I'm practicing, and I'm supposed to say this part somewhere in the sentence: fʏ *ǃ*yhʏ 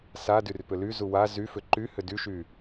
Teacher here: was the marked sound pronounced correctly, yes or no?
yes